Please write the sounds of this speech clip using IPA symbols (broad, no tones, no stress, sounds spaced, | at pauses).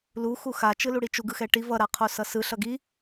l u x u x a t͡ʃ ɯ l u ɽ i t͡ʃ u ɡ ɯ x ɛ ʈ i v ʌ ɾ a qʰ o s ʌ s ɯ ɬ ʌ ɡ i